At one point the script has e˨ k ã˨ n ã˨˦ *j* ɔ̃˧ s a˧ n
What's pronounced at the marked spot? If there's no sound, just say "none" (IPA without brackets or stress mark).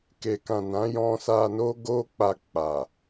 j